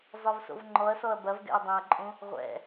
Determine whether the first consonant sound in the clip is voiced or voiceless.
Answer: voiced